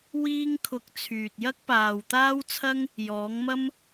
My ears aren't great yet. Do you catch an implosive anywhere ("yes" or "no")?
no